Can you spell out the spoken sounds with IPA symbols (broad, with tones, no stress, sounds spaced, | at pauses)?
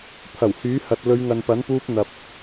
pʰ ɐ˨˩ w h yː˨˥ h ɐ˨ t̚ l ɵ˨˧ ɥ ŋ ɐ˨ n p ɐ˨˥ n p uː˧ p̚ n̪ ɐ˨ p̚